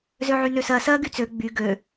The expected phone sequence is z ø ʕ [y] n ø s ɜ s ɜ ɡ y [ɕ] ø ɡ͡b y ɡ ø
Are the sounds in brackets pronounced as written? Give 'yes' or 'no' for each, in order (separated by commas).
yes, no